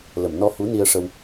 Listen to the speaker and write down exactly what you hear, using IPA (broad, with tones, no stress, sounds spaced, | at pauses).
l ə˨˩˨ m n ɔ˧ h u˧˥ n i˧ ə̯ ʂ ə˧ w